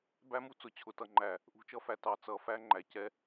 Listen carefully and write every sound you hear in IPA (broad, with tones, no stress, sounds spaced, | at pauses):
b æ˦ m u˦ t͡s ʊ˨ t͡ɕʰ ʊ˨ t ʌ˨ ŋ͡ǃ æ˨ | ʔ ṳ˨ t͡ʃ ʌ˦ f æ˨ t ɑ˨ t͡s ʌ˨ f æ˦ ŋ͡ǃ æ˨ c ɛ˦